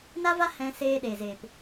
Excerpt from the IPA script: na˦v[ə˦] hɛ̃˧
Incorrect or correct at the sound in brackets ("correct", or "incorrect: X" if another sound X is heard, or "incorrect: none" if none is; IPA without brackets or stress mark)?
incorrect: a˦